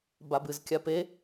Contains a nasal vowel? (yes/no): no